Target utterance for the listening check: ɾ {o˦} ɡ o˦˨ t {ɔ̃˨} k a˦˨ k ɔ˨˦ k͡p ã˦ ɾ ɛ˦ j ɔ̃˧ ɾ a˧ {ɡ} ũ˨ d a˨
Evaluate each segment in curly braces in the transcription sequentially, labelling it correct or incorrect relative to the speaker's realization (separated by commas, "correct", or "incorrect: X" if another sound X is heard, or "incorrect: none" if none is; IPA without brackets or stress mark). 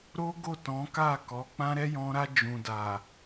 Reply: correct, incorrect: ɔ̃˨˦, incorrect: d͡ʒ